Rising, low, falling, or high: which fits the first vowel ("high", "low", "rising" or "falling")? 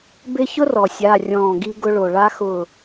high